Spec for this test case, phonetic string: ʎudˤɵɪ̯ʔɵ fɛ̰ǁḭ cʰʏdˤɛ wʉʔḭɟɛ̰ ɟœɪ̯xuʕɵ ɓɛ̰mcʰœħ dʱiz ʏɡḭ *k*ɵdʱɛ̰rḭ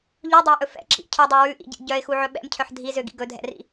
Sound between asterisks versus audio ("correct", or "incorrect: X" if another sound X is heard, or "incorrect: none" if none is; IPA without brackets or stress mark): incorrect: ɡ